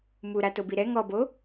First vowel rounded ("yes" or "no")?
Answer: yes